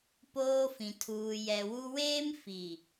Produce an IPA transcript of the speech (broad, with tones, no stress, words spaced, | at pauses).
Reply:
poː˦fĩ˨ tʰuː˨jɛ˨wu˦ weː˦mfi˨